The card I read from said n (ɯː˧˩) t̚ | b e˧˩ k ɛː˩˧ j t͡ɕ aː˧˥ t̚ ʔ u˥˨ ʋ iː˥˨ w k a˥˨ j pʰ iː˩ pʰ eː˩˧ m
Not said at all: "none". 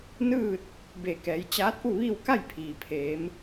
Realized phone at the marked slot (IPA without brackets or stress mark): ɯː˥˨